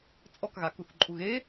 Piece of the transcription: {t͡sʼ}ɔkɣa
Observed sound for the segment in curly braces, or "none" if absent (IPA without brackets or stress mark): t͡sʼ